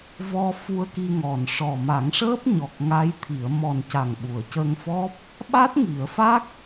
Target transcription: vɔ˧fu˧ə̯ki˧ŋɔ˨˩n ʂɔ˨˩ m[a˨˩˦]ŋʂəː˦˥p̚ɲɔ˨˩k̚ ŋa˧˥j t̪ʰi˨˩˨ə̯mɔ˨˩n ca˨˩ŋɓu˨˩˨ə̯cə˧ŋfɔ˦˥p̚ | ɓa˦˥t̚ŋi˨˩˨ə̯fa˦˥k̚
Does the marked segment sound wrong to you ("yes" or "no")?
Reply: no